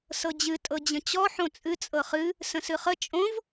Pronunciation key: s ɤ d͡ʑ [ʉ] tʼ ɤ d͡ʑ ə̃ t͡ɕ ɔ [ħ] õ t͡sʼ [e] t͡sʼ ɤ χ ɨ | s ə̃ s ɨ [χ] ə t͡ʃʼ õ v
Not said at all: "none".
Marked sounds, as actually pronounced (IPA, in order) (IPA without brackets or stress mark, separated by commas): ɨ, ħ, ɨ, χ